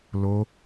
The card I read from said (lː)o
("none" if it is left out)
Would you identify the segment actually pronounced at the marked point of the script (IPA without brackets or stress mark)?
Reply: l